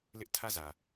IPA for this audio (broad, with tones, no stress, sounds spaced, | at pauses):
l ɪ˦ ʔ tʰ ä˦˨ z ä˨